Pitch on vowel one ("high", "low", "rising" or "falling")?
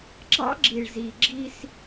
high